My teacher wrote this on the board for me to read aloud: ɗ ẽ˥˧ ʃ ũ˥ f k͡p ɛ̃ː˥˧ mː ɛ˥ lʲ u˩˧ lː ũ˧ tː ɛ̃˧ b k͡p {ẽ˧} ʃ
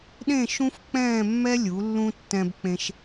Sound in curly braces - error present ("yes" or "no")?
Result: no